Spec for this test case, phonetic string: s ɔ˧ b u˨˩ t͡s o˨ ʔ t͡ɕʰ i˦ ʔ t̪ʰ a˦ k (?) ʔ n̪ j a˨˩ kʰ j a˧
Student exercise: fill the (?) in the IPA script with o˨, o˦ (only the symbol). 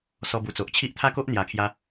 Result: o˦